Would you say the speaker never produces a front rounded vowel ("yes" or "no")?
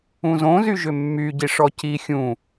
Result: no